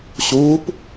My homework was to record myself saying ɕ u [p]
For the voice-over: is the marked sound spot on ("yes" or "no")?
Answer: yes